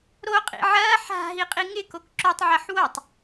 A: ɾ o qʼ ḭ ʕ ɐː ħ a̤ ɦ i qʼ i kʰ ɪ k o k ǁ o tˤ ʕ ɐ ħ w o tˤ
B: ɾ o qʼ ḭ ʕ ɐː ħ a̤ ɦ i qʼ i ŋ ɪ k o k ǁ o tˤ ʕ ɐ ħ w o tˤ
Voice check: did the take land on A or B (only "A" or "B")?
B